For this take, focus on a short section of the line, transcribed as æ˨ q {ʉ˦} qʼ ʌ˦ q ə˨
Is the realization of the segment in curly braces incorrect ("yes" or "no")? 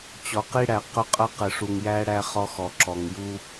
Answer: yes